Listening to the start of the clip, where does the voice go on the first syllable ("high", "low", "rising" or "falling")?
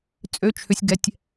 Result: rising